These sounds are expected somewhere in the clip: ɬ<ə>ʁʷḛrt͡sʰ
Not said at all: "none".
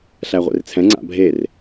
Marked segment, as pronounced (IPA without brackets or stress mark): æ